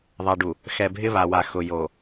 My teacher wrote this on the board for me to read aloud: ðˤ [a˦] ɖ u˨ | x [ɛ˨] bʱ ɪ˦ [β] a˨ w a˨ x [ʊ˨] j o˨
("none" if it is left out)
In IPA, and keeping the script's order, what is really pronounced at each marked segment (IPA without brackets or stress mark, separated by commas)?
a˨, ɛ˨, β, ʊ˨